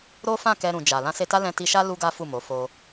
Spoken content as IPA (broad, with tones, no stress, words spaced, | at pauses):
ɾo˦fã˦˨ kɛ˧ɾũ˨d͡ʒa˨ lã˧se˧ta˦ lɛ̃˧ti˧ʃa˦ lu˦ɡa˦ fu˦˨mo˨˦ fo˧